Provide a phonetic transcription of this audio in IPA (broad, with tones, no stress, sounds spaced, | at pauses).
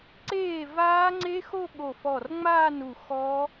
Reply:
ǀ eː˥˩ v aː˦˥ ŋ͡ǀ e˦˥ x o˥˧ ɠ o˧˩ f ɔ˧˩ r ŋ͡m aː˥˧ n u˧˩ x ɔ˦˥